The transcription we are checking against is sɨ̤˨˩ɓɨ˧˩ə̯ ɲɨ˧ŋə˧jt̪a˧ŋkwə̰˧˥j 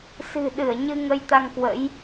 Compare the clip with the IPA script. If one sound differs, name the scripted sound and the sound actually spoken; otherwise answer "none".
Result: ɓ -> ɗ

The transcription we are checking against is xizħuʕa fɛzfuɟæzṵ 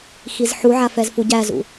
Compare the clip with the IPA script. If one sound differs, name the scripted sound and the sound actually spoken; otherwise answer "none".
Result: none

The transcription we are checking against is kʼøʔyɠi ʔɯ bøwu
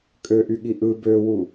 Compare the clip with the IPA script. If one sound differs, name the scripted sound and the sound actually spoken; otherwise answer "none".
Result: none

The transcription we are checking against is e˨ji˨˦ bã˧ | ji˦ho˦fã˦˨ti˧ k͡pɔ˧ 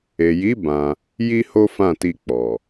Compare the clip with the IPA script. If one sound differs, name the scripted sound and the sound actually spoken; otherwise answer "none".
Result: ɔ˧ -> ɔ˨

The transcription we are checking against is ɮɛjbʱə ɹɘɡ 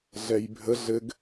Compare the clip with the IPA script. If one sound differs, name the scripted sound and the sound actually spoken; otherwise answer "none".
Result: ɹ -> ɮ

